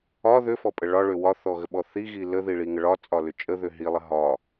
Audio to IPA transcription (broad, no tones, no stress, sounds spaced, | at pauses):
ɒ ð ʏ f ɔ pʼ ə ɭ ɒ ɭ ʏ w ɒ θ ɔ ɣ ə ɓ ɔ θ i ɣ i l ə ð i ɭ i ŋ ə ɭ ɒ t͡sʼ ɒ l ʏ t͡ʃʼ ə ð ʏ ɦ i lˠ ə ɦ ɒ